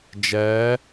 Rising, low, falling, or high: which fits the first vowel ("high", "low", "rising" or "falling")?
rising